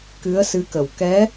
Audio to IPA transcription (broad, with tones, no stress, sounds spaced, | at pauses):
k ɨ˧˥ ə̯ s ɨ˧˥ k ə˨˩ w k ɛ˧˥